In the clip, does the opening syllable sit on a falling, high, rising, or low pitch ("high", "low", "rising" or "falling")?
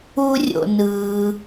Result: high